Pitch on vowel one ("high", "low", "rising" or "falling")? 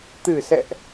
low